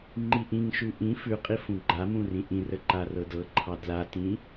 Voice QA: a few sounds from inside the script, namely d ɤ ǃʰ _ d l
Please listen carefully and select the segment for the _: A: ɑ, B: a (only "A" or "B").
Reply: A